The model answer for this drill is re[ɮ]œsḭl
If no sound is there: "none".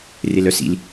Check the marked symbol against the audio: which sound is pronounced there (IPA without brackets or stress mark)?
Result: l